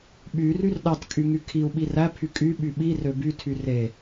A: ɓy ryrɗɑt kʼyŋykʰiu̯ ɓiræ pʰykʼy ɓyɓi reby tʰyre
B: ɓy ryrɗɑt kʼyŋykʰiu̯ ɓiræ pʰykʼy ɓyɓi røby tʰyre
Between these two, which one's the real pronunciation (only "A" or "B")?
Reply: B